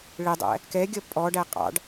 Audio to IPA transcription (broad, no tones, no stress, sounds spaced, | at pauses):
ɭ ɪ dˤ æ̰ | k ɛ ɡʲ ʌ pʼ ɔ ɖ æ qʼ ɑ̰ ɖ